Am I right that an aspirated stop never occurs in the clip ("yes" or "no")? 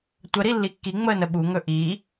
yes